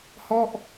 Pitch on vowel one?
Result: falling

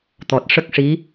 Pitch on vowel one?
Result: low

